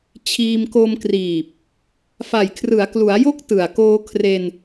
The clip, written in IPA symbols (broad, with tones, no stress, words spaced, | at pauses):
t͡ɕʰiː˧mko˧mkriː˨˩p̚ | fa˨˩jkʰrɯ˩˦a̯klu˩˦a̯jo˦˥k̚ tɯ˨˩a̯ koː˧kʰre˧n